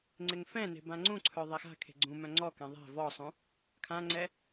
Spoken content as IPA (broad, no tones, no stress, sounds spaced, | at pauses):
ŋ͡ǀ ɪ ŋ f ɛ̃ n e̤ b ã ŋ͡ǀ ũ ǀʰ œ ðˤ e x a̤ kʰ e̤ ɡ͡ǀ ũ m œ̃ ŋ͡ǀ ɔ k ɛ̃ ðˤ ɛ̤ v ɔ sˤ ũ | kʰ ã ŋ͡ǀ ɛ